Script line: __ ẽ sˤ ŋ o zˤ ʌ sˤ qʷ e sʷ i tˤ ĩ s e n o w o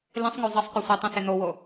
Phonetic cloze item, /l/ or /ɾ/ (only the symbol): l